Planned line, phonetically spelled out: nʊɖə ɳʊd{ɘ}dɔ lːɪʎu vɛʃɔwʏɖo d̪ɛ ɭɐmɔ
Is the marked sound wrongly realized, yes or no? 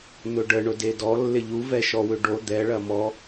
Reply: yes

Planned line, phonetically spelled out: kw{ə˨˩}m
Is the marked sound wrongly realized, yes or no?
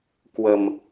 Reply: no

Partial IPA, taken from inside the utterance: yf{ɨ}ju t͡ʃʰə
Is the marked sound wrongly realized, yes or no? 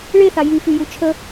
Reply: yes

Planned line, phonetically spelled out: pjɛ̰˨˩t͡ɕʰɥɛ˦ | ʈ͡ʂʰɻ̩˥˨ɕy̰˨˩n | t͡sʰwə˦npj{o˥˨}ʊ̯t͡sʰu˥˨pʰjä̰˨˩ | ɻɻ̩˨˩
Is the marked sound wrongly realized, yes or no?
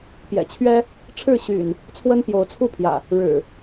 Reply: yes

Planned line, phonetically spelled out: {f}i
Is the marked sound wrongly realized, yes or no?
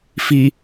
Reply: no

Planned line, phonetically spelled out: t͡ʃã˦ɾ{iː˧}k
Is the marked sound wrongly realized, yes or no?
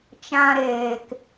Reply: yes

